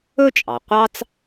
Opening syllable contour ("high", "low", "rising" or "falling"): high